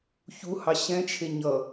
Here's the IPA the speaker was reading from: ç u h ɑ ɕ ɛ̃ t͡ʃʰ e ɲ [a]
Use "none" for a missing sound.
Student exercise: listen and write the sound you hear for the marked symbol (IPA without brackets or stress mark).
ʌ